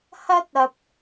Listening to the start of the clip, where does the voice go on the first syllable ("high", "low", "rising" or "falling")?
high